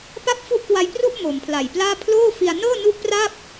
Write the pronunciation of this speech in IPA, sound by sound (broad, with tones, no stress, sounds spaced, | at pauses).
p a˥˩ p̚ f u˦˥ ʔ k w a˧ j p r u˥˩ ʔ m o˩˦ m pʰ l a˨˩ j p l aː˥˩ pʰ l oː˥˩ f i˧ a̯ n ɤː˥˩ n u˦˥ ʔ p r a˥˩ p̚